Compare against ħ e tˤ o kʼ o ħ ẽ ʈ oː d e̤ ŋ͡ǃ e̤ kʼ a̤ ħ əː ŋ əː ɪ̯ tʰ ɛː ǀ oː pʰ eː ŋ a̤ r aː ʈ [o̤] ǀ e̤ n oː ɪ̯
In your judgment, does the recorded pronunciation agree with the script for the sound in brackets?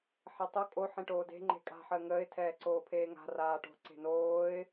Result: yes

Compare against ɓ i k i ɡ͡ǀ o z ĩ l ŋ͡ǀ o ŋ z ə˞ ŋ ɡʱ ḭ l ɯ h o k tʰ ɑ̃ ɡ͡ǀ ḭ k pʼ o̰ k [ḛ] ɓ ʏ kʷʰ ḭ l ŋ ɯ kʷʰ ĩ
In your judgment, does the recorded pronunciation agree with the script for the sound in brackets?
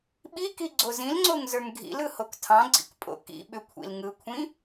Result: no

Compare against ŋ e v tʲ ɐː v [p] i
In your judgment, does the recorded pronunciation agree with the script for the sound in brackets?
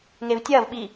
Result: no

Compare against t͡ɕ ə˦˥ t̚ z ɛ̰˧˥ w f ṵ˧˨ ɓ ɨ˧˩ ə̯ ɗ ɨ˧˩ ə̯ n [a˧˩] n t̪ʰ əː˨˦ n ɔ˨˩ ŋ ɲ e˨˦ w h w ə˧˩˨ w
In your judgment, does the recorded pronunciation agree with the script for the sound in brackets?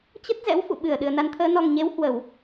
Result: no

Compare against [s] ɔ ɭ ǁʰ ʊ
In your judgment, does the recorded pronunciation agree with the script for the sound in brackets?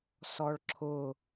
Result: yes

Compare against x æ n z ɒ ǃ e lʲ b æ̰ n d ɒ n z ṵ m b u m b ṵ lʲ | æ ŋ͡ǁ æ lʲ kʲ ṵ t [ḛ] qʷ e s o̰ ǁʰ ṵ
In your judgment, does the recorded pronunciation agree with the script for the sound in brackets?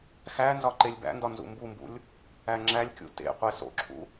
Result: yes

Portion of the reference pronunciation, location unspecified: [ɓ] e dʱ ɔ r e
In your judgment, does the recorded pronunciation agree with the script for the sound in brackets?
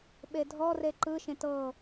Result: yes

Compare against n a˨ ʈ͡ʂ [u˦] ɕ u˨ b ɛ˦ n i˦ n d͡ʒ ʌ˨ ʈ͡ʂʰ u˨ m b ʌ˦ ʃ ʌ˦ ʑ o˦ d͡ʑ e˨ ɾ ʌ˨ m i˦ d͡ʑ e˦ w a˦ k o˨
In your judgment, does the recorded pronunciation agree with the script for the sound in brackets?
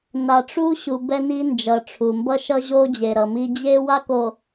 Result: yes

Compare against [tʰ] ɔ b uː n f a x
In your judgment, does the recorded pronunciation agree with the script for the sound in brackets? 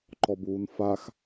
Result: no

